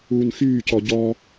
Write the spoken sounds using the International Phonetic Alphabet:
uː n x yː c ɔ ɟ ɔ

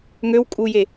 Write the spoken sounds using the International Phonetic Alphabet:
ŋ ø w kʼ u j e

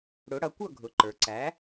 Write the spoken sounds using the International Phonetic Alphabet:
ɽ ʊ˩˥ ɽ ʌ˧ kʷ ʌ˥˩ ɡʱ ʊ˩ ǃ ə˞˩ ǀ æ˩˥

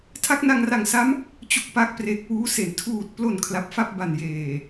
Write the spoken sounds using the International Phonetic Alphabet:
tʰ a˦˥ k̚ n a˧ ŋ r a˨˩ ŋ s a˦˥ m | t͡ɕ u˦˥ k̚ p a˦˥ k̚ p r e˨˩ k̚ w uː˦˥ s e˩˦ n tʰ uː˨˩ t̚ p l o˨˩ n kʰ l a˨˩ p̚ f a˥˩ p̚ b a˨˩ n j eː˨˩

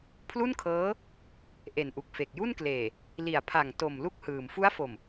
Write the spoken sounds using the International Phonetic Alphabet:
pʰ l u˥˩ n kʰ ɤː˦˥ | ʔ e˨˩ n ʔ u˨˩ k̚ f e˨˩ k̚ j u˥˩ n k l eː˨˩ | l i˨˩ a̯ pʰ a˨˩ ŋ t o˨˩ m l u˥˩ k̚ h ɯː˨˩ m f u˦˥ a̯ f o˨˩ m

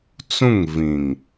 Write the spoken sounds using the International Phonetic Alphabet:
t͡s ũ˦˨ ŋ v ĩ˨ ŋ

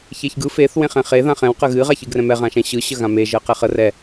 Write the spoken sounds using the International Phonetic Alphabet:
ç e ç ɡ ɯ f e θ w ẽ χ ɛ̃ χ e ð ã χ ɛ̃ w q ə ɣ ɨ ʁ a ç ɨ ɡ r ɛ̃ m ɛ ʁ ã ʃ ɛ̃ ɕ ɯ ɕ ə ɣ ã m e ʒ ɜ q ɛ χ ə r ɛ

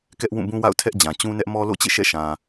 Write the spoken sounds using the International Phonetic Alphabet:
k ɛ˦ ʔ w ũ˦˨ b ũ˦ w a̰˦˨ ʊ̯ tʰ ɛ˦ ʔ d͡ʑ ã˨ t͡ɕ ũ˦ n ɛ˦ ʔ m ɔ˦ l o̰˦˨ t͡ɕ ḛ˦˨ ʃ ɛ̰˦˨ ʃ ã˨

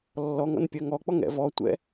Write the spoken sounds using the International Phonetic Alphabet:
lː ɔ ŋ ɔ̰ n pʲ ɜ ŋ ɔ k͡p ɔ ŋ ɛ̰ v ɔ tʷ ɛ̰

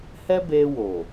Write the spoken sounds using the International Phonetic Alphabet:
h ɛ˦ b e˧ w o˨

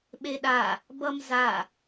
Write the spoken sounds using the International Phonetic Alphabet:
ɓ e ɗ a | b ʌ m z a

